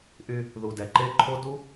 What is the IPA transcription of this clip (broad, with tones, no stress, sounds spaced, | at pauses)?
ʔ y˧ | ð u˨ d ɛ˨ ǃ e˦˨ ǃʰ o˦ d u˦